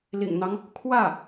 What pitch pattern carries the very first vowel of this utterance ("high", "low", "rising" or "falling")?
low